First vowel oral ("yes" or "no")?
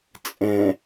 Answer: no